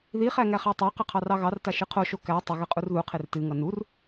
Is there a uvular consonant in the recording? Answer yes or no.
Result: yes